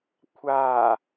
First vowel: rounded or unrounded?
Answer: unrounded